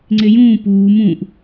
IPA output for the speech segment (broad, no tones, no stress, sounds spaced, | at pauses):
ŋ͡ǀ e j ũː p uː m ũ ʔ